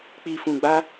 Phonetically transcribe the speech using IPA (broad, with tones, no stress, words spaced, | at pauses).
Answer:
k͡pi˨fũ˨ɡ͡ba˧